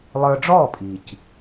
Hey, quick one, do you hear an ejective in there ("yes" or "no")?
yes